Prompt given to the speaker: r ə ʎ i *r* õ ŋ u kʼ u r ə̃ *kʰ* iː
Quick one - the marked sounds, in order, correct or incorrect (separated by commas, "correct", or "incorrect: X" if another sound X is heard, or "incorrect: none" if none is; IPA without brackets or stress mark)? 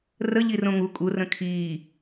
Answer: correct, correct